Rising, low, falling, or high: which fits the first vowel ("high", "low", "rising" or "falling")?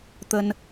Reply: high